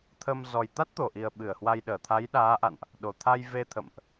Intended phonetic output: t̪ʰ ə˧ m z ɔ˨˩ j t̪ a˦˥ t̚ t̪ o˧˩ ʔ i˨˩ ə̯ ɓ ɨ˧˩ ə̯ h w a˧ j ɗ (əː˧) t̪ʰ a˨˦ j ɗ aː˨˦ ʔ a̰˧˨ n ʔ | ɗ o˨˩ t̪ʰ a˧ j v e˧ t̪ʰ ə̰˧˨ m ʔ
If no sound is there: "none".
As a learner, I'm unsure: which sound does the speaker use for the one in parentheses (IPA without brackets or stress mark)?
əː˧˩